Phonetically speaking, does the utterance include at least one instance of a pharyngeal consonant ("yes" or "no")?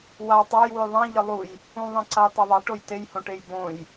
no